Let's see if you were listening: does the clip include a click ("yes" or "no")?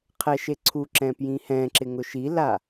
yes